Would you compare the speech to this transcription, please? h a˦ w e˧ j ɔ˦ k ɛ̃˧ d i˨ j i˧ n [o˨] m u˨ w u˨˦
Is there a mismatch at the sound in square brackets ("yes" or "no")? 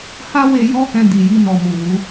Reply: yes